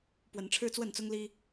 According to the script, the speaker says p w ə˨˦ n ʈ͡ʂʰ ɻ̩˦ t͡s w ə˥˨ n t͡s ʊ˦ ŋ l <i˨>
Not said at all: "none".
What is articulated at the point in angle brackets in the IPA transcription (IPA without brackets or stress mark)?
i˦